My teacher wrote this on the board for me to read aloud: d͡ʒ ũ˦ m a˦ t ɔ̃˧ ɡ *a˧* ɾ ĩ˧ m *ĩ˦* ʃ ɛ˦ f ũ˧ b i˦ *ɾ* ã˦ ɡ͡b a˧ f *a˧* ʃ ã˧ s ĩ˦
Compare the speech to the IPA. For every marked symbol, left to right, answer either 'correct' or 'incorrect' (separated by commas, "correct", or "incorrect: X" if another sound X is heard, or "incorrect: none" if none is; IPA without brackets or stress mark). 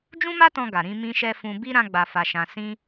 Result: incorrect: a˨, correct, correct, correct